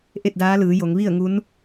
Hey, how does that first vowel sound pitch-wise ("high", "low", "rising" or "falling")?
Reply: falling